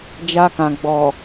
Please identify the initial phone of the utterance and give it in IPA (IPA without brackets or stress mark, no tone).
d͡ʒ